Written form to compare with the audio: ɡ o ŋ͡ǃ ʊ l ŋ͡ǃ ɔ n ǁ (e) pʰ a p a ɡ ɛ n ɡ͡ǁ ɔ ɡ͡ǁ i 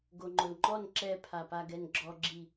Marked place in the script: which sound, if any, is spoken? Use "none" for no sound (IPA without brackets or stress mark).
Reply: ɛ